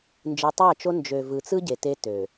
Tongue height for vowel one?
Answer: high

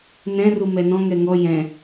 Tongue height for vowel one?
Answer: mid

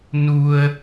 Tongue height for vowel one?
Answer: high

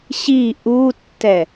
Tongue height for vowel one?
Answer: high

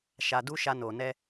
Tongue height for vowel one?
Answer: low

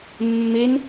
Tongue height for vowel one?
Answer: mid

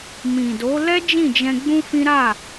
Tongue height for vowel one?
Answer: high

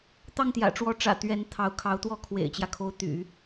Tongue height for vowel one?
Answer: low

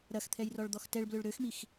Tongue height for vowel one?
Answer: low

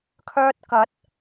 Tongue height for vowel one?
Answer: mid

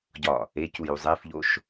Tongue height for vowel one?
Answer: low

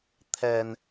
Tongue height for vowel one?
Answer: mid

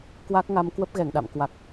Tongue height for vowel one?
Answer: low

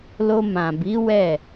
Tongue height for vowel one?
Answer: mid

